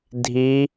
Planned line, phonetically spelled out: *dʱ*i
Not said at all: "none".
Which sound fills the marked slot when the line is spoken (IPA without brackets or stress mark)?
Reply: dʱ